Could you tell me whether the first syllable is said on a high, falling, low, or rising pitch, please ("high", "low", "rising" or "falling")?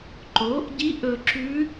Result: rising